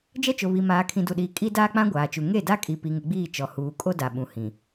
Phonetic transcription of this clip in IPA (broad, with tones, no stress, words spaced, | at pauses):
d͡ʒɛ˦t͡ʃo˨βi˨ maː˨kʰĩ˨du˨ɗiː˨ kʼi˦ daː˦k͡pã˦ ɡʷaː˨t͡ʃu˨ ŋe˦˨da˦kʼi˨ pi˨ŋɪ˨ɡ͡biː˦˨ t͡ʃɔ˨huː˨ kʼo˦da˨ɓũ˨ hĩ˨